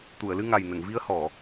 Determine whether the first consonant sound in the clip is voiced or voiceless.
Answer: voiceless